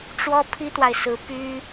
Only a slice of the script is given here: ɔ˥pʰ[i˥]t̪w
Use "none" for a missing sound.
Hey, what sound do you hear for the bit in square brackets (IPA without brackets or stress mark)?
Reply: i˥